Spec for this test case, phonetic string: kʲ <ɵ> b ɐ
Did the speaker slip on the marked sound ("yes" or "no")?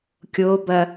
yes